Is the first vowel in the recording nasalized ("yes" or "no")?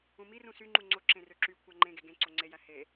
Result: yes